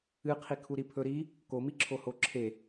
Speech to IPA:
ɨ qʰ i kʰ u ɾ i pʰ ɵ ɾ i | k o m i ǁʰ o h o ǁʰ e

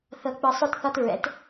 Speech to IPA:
θ ɤ˨ k͡p ɯ˨ sˤ o˦ t θ ɒ˦ t ɹ ɛ̰˨˦ t

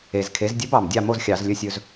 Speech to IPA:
e˨˩ z kʰ e˩˥ z dʲ ɵ˧˥ b ɑ˨˩ m dʲ ɑ˥˨ m o˥˨ z xʲ ɑ˧˩˧ z lʲ ɵ˧ sʲ ɵ˧ z

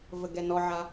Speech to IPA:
v ə ɡ ɛ n ɔ ʕ a

